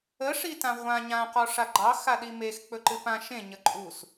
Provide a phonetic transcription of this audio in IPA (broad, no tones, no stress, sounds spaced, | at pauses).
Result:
ə ʂ i t ã ʁʷ ã ɲ ã q ɔ ʂ a ɡ͡ǃ ɑ x a ɗ i m e x k͡p ɵ ǃ ɨ p ã ʃ ẽ ɲ ə ǃʼ u s